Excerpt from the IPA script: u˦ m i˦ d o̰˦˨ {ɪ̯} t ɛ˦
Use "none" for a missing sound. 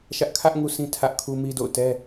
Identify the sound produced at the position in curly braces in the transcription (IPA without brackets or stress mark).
ʊ̯